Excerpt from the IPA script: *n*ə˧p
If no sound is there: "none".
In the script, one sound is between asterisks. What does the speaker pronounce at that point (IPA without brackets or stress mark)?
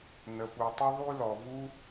n